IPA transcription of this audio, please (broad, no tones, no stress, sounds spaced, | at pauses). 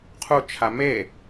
qʰ u t͡ʃʰ a m e